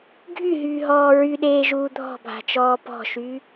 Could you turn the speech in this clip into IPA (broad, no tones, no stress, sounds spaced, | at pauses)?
ɡʱ y ɦ yː ɦ ɔː ɹ y ɗ eː ʒ uː dʱ ɔ̤ bʱ a̤ t͡ʃ ɔː p ɔ̤ ʃ y